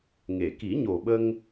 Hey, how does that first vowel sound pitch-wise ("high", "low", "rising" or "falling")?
low